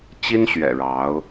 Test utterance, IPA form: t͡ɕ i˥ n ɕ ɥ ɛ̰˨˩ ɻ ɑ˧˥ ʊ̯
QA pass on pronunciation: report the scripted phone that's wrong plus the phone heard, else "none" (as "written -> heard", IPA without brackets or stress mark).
none